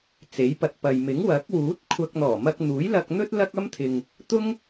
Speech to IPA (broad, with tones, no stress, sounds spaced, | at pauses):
t͡s e˨˥ j p ɐ˨ t̚ p ɐ˨ j m ɪ˨˥ ŋ w ɐ˨˥ k̚ w uː˨˥ t̚ kʷʰ ɐ˧ k̚ n̪ ɔː˨˩ m ɐ˧ k̚ n̪ uː˨˥ j l ɐ˧ k̚ n̪ ɵ˥ t̚ l ɐ˥ k̚ ɐ˥ m t̪ʰ ɪ˨ ŋ | t̪ ʊ˥ ŋ